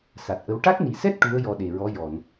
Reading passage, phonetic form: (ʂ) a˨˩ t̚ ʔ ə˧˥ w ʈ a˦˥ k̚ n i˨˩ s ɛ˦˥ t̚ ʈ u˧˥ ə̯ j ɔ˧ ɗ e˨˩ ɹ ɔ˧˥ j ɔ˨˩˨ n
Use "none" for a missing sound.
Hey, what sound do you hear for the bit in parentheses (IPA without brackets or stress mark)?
s